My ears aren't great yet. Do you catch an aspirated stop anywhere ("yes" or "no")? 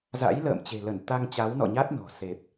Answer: no